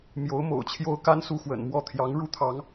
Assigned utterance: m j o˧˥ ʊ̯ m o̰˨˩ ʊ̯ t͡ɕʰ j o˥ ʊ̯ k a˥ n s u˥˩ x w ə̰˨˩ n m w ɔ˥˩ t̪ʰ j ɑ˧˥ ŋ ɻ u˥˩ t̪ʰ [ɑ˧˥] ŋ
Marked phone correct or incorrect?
correct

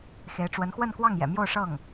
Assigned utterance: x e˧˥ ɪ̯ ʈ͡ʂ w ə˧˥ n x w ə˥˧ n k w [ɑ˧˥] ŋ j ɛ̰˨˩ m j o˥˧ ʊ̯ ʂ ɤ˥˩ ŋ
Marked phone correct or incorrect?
incorrect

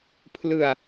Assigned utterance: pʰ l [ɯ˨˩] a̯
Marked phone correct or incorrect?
correct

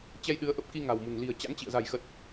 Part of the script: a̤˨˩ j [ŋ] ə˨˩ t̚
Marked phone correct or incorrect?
incorrect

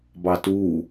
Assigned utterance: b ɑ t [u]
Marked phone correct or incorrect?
correct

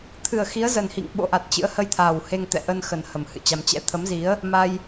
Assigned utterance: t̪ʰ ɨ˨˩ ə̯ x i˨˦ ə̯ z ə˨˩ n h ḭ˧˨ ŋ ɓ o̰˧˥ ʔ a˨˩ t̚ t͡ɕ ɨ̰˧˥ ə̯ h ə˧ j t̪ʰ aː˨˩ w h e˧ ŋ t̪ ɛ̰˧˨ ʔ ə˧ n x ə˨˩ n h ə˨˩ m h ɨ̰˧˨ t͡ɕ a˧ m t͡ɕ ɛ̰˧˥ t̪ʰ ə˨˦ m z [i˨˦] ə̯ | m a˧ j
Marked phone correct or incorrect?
correct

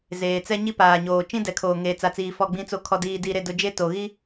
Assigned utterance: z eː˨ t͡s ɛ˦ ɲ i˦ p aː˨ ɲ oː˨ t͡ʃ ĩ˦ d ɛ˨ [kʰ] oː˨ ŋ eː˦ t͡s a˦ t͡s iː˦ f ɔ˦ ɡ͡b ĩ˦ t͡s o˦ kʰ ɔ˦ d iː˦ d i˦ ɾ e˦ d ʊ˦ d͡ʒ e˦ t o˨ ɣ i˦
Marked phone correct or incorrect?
correct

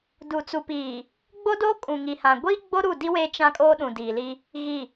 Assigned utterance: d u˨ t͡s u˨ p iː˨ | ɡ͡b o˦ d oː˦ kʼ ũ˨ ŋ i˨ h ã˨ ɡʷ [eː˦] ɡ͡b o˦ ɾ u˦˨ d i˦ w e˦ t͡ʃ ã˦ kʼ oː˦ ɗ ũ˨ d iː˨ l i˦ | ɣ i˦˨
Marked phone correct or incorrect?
incorrect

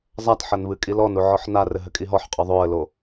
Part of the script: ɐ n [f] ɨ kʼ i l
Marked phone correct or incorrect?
incorrect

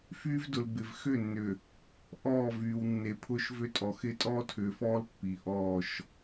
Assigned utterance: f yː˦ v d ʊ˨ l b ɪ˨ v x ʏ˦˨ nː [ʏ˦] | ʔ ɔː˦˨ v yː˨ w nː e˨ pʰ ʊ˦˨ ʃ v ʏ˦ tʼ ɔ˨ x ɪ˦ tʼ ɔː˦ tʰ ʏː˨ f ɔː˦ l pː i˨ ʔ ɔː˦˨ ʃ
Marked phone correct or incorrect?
incorrect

